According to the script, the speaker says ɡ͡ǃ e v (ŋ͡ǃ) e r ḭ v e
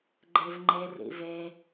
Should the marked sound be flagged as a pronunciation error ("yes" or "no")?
no